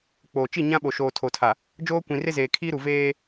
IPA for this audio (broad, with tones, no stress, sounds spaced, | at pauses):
k͡p oː˨ t͡ʃ i˦˨ ɲ ã˦ ɓ o˨ ʃ oː˨ tʰ o˨ tʰ a˨ | d͡ʒ oː˦ kʷ ĩ˨ r e˦ z eː˨ kʰ i˦ ɾ u˨ v eː˦